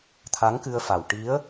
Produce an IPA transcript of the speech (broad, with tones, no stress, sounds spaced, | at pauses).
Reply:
t̪ʰ a˧˥ ŋ k ɨ˧ ə̯ f a˨˩ w ʈ i˧˥ ə̯